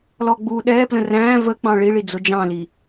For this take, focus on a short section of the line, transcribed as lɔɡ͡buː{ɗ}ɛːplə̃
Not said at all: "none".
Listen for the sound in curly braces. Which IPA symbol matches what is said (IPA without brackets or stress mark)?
ɗ